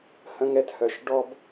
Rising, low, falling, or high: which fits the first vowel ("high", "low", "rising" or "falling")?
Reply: high